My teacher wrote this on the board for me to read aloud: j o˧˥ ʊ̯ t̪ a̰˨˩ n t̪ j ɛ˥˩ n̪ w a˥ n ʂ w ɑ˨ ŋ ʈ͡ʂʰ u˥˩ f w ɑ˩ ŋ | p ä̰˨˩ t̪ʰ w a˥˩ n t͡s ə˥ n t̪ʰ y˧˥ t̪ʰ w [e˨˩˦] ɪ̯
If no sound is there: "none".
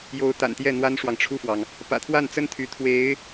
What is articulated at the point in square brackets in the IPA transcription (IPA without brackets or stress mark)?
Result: e˧˥